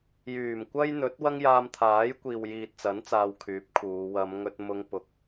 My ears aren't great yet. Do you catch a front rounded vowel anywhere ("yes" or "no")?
yes